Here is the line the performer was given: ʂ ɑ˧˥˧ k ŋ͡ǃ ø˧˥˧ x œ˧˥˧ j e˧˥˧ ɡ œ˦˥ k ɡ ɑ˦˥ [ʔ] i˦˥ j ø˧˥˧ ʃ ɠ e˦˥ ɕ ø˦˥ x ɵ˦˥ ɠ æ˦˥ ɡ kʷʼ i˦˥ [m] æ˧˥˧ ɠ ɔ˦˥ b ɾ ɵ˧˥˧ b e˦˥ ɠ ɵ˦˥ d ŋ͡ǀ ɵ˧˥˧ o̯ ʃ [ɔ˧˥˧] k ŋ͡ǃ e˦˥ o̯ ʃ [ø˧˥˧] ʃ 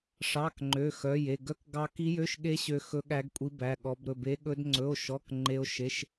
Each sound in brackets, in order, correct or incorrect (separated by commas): incorrect, incorrect, correct, incorrect